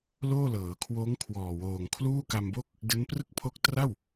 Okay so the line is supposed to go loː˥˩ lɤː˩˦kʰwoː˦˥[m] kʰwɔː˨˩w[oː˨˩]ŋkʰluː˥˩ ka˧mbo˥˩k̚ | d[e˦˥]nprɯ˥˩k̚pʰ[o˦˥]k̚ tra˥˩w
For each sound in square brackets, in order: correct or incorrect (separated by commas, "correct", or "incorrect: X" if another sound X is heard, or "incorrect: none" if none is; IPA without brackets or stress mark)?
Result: incorrect: ŋ, correct, correct, correct